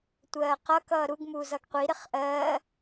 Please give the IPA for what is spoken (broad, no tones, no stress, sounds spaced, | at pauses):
tʷ ɜː q ʌ k ʌː ɾ u ɡ m uː z ʌ ɡ qʷ i ɾ ɪ χ ʔ ɜː